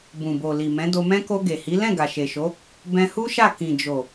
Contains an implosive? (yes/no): no